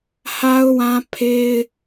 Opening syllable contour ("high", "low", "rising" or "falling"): high